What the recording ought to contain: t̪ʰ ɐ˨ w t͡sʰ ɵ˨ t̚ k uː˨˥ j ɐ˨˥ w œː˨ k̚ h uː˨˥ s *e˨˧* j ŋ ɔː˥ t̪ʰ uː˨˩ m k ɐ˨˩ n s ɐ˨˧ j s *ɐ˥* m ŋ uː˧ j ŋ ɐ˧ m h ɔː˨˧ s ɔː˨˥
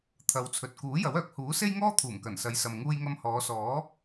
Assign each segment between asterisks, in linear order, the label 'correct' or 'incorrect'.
incorrect, incorrect

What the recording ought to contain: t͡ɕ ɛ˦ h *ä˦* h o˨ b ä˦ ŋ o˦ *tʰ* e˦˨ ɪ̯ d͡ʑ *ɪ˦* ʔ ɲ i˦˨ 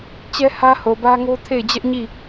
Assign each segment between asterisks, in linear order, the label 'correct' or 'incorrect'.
correct, correct, incorrect

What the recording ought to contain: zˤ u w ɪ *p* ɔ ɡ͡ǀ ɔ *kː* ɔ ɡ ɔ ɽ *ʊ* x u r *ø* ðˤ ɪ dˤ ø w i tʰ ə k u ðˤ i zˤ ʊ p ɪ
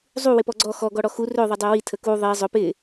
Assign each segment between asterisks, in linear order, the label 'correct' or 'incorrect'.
correct, incorrect, incorrect, correct

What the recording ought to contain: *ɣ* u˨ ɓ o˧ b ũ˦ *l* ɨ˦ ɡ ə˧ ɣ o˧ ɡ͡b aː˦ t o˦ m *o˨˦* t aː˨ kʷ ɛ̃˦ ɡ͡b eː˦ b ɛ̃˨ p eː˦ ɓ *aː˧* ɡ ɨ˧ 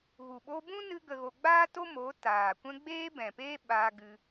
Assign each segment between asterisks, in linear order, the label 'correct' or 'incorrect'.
correct, incorrect, correct, correct

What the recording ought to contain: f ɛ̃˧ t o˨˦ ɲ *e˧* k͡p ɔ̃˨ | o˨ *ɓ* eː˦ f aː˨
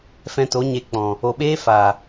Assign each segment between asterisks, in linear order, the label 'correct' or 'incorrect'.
correct, correct

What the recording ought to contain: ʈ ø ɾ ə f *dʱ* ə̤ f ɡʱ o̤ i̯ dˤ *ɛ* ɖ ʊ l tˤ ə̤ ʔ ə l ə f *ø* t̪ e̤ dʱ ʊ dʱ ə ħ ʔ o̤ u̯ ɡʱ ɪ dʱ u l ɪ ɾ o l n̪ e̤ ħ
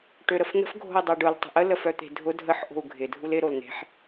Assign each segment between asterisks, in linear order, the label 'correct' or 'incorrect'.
incorrect, correct, incorrect

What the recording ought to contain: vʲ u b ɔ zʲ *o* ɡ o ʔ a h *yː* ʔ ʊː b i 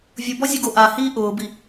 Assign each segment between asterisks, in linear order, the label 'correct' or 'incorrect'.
incorrect, incorrect

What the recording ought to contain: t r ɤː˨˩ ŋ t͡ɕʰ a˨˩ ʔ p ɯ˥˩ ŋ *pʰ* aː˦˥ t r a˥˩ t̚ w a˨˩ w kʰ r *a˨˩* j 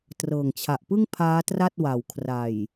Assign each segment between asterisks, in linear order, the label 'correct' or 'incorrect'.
correct, correct

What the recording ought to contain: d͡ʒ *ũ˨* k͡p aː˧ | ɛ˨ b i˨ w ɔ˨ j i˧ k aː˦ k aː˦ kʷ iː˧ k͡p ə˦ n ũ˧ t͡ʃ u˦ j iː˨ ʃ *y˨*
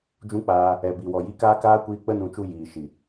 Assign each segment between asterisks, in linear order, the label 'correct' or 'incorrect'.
incorrect, incorrect

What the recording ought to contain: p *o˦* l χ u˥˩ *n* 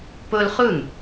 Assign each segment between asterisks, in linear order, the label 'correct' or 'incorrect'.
correct, correct

